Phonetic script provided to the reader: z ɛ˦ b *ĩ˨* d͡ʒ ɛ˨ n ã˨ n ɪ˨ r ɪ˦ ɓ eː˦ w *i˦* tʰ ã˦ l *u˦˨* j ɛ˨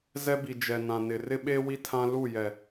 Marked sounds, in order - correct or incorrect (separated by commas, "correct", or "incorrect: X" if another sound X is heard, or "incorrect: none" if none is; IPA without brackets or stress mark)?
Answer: incorrect: i˨, correct, correct